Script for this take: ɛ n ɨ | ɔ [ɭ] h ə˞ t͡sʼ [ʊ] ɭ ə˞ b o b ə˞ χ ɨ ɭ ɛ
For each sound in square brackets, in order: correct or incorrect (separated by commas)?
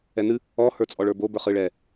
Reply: incorrect, incorrect